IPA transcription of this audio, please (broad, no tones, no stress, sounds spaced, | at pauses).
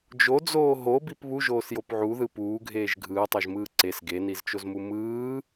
d͡ʒ o d͡z oː ɦ o b i p β u ʒ oː s j o p ʕ u ð ɯ p uː ɡʱ eː ʒ ɡʱ ɯː tˤ o ʒ m ɯː ǀ e s ɡ e n i z t͡ʃ o z m u m ɯː